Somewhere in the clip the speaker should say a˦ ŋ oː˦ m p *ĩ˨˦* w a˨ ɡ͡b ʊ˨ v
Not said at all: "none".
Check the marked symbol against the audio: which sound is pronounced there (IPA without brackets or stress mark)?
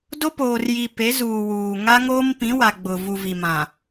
ĩ˨˦